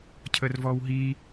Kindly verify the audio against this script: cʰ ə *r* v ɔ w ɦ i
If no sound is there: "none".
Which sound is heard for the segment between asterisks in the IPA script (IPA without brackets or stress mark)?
r